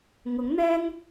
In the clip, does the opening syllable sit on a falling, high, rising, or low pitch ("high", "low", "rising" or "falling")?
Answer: rising